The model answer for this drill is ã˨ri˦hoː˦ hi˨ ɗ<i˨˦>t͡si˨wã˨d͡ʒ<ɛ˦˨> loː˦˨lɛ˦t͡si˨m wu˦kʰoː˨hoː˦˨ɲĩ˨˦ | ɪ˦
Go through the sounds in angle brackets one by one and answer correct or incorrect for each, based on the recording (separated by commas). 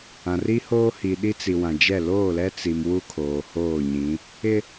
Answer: incorrect, correct